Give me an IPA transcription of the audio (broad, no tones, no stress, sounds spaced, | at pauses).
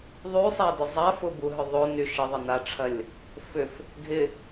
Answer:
ðˤ y sˤ a d ʏ zˤ a f ʊ b u ɦ ʏ ðˤ o n y ʃ ɪ ðˤ ɪ n a ʈ͡ʂʰ ɐ lʲ | f ʏ f | ɡʱ ɪ